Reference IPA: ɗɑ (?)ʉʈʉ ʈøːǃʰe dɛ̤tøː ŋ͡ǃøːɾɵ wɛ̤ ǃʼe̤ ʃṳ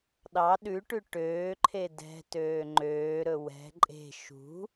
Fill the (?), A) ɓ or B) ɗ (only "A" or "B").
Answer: B